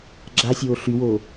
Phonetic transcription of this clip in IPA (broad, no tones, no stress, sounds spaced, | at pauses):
ɡ͡ǁ a sʲ oː ɬ y w oː